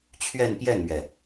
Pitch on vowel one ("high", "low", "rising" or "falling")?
falling